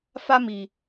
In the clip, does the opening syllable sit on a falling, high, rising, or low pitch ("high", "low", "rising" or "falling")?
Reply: high